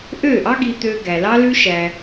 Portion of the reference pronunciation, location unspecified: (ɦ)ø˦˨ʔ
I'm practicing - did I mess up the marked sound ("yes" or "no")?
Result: yes